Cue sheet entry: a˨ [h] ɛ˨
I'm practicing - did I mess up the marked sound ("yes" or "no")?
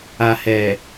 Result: no